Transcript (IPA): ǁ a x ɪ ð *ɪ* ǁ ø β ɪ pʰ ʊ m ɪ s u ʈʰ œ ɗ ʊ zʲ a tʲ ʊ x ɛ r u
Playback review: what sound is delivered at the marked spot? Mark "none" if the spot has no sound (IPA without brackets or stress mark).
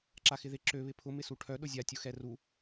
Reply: ɪ